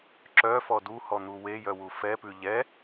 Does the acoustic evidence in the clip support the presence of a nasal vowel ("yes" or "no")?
no